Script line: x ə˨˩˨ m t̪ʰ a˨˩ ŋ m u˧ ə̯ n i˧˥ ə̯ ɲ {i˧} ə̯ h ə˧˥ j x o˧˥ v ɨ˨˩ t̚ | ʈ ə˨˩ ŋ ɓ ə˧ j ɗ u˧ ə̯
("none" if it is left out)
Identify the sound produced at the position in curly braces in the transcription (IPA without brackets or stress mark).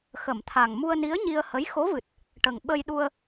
i˧